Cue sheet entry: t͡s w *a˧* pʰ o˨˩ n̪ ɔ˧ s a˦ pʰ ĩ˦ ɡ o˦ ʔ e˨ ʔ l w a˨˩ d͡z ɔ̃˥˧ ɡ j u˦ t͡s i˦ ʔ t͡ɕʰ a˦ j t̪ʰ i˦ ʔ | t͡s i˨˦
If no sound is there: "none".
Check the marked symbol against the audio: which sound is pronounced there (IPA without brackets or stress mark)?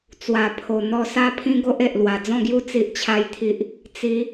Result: a˨˩